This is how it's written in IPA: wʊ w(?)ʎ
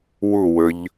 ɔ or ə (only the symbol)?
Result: ə